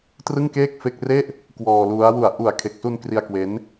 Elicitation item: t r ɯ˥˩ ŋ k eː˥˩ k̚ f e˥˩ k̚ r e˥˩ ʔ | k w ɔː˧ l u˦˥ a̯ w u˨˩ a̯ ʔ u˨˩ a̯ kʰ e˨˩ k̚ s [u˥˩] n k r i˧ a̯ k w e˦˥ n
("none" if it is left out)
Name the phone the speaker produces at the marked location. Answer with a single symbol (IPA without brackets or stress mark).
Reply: u˧